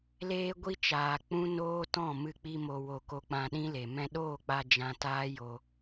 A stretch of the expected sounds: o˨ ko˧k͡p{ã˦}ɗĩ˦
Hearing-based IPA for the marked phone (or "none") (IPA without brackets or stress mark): ã˧